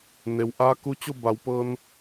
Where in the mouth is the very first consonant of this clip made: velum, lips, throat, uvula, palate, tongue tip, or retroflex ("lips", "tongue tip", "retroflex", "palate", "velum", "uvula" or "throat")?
tongue tip